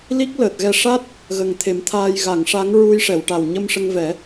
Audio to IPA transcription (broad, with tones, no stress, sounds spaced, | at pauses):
l i˦˥ k̚ l əː˨˩ t̚ ɣ ɛ˧ ʂ a˦˥ t̚ | ɣ ə˨˩ ŋ t̪ʰ e˨˩˦ m t̪ʰ aː˧ j ɣ a˨˩˨ ŋ ʂ a˧˥ ŋ ɹ u˧ j ʂ ɛ˨˩˨ w ʈ a˨˩ w ɲ ə˧ m ʂ ə˧ ŋ v ɛ˨˩˦